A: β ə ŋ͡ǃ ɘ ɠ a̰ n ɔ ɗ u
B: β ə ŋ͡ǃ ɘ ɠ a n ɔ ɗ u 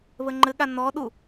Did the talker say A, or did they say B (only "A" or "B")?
B